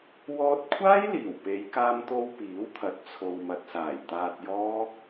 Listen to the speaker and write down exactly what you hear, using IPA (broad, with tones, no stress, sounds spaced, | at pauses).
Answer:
w ɔː˧ t̚ kʷʰ aː˥ j l iː˨˩ w p e˨˧ j k aː˧ m t̪ o˧ w p iː˨˥ w t̪ʰ ɐ˨˥ t̚ t͡sʰ o˨ w m ɐ˨ t̚ s aː˨˩ j t̪ aː˧ t̚ j ɔː˥